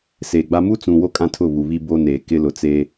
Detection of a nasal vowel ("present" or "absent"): present